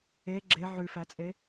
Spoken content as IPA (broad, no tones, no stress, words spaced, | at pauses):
e ɡ͡ǁe ʕʉfæt͡sʼe